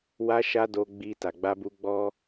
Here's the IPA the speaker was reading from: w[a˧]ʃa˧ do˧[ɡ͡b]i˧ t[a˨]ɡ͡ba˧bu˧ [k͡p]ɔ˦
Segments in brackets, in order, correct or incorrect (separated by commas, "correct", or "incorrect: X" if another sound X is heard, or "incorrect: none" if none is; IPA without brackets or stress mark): correct, correct, correct, incorrect: ɡ͡b